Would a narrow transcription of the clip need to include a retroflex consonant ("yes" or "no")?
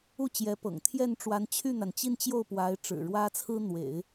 yes